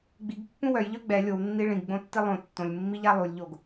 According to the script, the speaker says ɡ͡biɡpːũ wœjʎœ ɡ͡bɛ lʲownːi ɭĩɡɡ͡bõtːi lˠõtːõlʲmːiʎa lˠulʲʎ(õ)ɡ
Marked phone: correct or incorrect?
incorrect